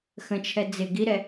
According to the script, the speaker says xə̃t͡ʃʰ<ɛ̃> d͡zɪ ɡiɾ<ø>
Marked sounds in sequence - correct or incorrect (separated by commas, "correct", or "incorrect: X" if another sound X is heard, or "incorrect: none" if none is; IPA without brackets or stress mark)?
incorrect: ɛ, incorrect: ɛ